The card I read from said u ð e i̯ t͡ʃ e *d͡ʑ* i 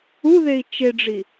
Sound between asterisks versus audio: incorrect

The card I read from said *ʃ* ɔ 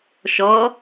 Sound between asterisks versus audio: correct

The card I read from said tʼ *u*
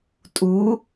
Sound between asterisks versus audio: correct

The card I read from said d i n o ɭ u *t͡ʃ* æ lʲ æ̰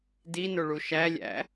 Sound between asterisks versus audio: incorrect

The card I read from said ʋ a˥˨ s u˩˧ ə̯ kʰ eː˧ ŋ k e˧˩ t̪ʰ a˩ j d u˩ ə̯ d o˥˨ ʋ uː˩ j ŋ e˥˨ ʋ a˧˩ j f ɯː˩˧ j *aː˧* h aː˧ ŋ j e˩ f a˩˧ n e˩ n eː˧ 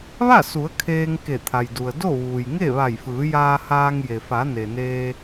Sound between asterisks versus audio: correct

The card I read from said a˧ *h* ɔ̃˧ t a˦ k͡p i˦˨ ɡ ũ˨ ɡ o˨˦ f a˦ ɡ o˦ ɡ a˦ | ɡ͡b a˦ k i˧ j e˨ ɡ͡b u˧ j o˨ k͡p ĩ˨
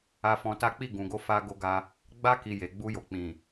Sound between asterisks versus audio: incorrect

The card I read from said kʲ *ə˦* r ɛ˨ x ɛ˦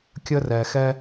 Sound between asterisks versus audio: correct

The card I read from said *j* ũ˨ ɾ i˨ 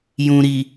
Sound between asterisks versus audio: correct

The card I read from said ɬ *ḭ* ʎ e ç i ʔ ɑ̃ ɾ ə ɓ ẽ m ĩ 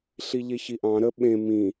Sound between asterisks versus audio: incorrect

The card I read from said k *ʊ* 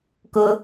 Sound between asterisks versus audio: correct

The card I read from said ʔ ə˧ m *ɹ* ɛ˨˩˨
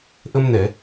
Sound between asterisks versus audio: incorrect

